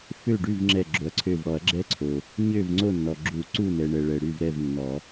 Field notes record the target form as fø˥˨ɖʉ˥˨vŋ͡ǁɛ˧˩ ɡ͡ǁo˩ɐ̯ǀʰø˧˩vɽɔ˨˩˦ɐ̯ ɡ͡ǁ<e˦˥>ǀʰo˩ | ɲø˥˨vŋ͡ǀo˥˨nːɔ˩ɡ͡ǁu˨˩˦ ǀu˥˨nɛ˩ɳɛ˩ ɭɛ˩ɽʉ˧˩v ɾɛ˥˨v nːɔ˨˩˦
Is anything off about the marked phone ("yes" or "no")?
yes